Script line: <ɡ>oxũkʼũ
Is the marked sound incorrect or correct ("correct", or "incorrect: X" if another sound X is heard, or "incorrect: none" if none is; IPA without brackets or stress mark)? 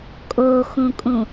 incorrect: kʼ